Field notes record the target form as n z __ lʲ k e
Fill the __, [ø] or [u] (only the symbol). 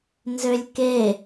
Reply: ø